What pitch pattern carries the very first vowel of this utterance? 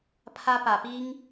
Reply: high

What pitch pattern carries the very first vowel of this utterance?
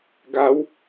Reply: rising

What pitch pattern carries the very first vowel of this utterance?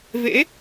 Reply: rising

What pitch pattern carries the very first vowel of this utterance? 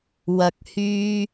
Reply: low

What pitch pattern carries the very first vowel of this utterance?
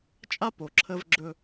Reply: high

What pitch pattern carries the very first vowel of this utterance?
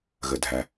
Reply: low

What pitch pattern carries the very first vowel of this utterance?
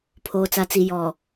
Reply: low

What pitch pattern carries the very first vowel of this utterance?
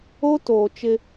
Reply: high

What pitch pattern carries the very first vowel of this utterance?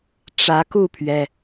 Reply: rising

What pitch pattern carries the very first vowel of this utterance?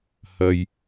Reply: low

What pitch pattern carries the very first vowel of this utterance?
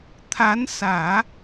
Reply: rising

